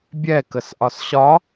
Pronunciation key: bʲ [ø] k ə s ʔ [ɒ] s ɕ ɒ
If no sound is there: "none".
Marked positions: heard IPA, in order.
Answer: ɛ, ɒ

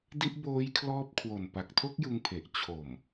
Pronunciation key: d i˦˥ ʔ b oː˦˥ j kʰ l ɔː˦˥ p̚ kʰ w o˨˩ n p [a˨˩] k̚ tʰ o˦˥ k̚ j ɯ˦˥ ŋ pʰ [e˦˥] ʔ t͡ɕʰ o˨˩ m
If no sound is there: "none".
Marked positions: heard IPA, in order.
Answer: a˨˩, e˨˩

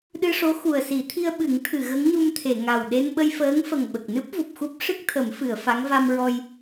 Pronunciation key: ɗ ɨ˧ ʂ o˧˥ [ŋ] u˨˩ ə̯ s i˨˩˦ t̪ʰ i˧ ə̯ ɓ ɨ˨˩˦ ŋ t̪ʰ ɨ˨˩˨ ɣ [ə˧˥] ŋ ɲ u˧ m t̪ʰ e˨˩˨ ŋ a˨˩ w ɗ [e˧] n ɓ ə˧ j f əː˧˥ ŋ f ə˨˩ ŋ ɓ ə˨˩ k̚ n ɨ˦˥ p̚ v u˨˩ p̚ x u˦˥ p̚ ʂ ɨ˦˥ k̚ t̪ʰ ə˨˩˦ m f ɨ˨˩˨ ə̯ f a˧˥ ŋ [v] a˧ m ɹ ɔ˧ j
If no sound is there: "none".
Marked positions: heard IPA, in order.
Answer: x, ə˧˥, e˧, v

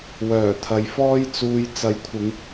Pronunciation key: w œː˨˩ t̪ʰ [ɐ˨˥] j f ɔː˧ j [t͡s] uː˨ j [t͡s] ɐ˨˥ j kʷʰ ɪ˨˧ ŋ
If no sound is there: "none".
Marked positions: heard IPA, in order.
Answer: ɐ˨, t͡s, t͡s

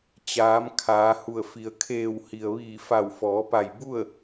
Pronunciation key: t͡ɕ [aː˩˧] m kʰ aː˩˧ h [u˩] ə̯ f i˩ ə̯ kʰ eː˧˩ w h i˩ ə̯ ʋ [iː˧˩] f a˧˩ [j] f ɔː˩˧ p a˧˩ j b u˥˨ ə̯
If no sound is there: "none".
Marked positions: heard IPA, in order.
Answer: aː˩˧, u˧˩, iː˧˩, w

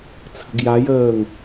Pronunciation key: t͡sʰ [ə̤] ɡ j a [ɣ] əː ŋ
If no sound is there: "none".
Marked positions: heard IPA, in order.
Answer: ə̤, j

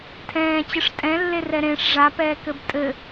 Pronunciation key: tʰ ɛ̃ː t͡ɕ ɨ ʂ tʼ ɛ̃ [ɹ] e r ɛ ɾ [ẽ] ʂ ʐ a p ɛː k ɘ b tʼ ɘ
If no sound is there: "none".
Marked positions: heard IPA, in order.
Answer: lː, ẽ

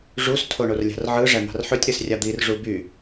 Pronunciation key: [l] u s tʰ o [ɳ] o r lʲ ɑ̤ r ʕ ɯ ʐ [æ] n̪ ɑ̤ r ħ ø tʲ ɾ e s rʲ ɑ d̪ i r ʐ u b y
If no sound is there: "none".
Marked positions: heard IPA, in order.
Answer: ʐ, ɳ, æ

